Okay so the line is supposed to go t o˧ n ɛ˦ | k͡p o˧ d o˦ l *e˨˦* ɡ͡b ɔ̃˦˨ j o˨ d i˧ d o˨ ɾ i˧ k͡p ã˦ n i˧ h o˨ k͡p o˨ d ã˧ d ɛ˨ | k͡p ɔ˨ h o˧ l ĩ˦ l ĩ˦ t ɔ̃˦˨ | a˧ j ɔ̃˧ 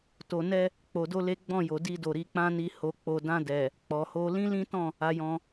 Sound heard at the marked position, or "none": e˦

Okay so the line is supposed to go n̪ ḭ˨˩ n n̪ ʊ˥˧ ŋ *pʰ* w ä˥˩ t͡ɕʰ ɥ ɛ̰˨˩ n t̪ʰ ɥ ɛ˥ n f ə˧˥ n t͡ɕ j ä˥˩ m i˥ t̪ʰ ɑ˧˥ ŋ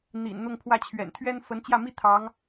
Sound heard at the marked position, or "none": pʰ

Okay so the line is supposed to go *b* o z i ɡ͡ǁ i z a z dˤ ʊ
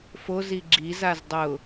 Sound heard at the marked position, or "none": f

